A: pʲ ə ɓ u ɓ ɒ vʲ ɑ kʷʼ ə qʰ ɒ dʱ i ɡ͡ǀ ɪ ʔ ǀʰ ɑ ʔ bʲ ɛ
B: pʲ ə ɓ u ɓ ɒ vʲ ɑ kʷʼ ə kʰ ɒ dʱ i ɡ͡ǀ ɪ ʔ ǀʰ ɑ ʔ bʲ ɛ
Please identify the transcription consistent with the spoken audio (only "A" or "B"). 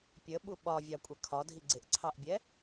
B